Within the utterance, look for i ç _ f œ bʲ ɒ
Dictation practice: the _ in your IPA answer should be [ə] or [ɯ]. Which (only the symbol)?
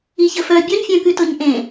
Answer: ə